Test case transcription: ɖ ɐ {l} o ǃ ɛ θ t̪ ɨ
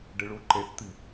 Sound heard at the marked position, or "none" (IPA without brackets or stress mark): ɭ